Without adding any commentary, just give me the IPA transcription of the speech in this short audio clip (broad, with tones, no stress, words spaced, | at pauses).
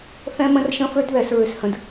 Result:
θɛ̃˦mə̃˦rʃə̃˦fø˦d ðɛ˦sɹʏ˦shə̃˦d